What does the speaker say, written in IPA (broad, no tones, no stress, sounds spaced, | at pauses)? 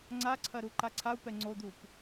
ŋ͡ǀ a ǀʰ ɐ ɾ u ǃ a ǀʰ a u̯ p ɛ ŋ͡ǀ o d̪ u p